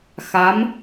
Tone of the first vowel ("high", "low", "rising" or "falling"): rising